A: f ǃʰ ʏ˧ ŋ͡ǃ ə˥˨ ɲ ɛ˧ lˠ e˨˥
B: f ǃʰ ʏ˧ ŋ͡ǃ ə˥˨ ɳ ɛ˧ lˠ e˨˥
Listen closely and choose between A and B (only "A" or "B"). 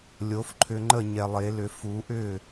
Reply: A